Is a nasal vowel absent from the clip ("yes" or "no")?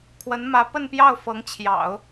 yes